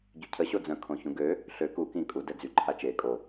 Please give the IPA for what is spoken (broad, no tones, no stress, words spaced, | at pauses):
ɟycʰə ɕod͡zœ̃ kʰõçũɡø | ɬø ku kĩ kʼu dɛd͡zy ǃʰat͡ʃe kʼo